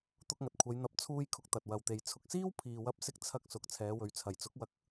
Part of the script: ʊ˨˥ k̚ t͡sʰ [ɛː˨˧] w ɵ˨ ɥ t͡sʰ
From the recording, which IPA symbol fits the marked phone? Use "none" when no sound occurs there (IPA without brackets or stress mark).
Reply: ɛː˨˧